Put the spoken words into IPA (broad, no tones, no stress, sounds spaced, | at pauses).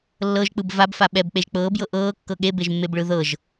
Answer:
lː ɤ ʒ k͡p ɯ b v a b f a ɓ ɛ b k͡p e ʒ k͡p ɤː b j ɤ ʔ ɤː kː ɤ ɠ e b e ʒ mː e b ɭ ɯ ð ɤ ʒ